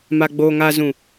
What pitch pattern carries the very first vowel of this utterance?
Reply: low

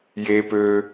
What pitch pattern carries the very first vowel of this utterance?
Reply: high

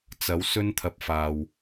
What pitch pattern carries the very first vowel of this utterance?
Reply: rising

